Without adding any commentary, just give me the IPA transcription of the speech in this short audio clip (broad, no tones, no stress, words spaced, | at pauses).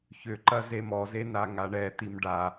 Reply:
çʏǃɐ zemɔze naŋaɳɛ t̪imɖa